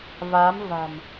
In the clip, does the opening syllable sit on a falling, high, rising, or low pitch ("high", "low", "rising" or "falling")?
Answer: rising